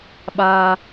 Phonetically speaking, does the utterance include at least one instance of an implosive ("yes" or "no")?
yes